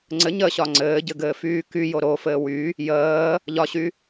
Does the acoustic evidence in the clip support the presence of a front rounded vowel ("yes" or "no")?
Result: yes